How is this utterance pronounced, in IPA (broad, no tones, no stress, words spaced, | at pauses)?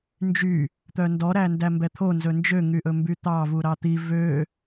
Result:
nd͡ʒy | t̪œndɔɾæ ndæmbɛt̪ʰo nzɵnd͡ʒøŋyʔɵ mbyt̪ɑ vuɾɑt̪i vø